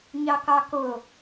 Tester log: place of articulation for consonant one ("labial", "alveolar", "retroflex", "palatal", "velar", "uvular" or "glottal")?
palatal